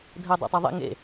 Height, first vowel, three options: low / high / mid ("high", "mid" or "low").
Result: mid